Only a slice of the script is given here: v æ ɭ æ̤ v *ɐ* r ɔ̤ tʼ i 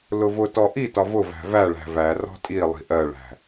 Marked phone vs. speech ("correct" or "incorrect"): incorrect